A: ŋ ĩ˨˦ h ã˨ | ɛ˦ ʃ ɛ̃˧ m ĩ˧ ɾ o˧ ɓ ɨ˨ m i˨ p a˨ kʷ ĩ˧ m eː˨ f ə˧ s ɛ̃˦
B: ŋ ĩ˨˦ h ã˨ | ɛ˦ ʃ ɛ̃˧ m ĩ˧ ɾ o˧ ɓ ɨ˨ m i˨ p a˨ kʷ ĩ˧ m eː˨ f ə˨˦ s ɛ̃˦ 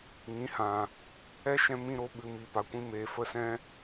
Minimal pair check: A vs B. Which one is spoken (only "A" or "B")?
A